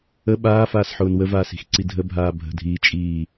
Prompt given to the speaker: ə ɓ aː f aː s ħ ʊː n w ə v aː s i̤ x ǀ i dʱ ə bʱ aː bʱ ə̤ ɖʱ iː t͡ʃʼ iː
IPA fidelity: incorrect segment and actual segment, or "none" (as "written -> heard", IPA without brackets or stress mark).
ɖʱ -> dʱ